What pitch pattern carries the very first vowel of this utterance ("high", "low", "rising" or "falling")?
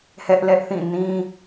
high